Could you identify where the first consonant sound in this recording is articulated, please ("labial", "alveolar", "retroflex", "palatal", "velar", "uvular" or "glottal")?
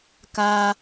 velar